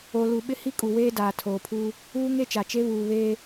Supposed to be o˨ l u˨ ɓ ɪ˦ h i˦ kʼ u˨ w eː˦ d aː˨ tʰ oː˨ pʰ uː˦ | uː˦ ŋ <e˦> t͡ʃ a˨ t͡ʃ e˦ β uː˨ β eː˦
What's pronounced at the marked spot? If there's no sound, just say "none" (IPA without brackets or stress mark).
e˦